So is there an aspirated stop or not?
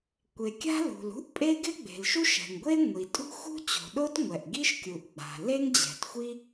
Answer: no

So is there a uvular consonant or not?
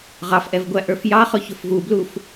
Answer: yes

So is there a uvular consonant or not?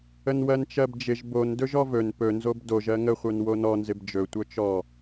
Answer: yes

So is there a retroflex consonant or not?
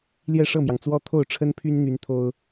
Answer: yes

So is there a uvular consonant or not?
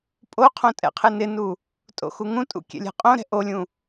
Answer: yes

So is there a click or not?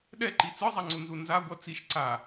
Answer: yes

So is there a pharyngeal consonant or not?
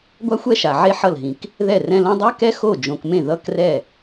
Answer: yes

